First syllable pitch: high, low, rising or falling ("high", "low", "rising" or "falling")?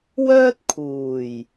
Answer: high